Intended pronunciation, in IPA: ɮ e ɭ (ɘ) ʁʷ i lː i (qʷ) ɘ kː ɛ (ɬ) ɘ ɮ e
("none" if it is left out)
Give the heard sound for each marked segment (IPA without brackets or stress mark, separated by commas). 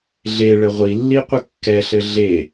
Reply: ɘ, qʷ, ɬ